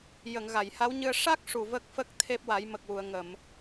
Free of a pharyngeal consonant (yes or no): yes